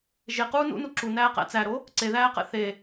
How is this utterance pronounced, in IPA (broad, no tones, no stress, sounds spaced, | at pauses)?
ʒ e q uː n ṵ n u ǁ u n æː q æ̰ t͡s æ ɾ o | ǀ e ð æː q ɛ̰ θ e